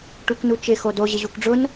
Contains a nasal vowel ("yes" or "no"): no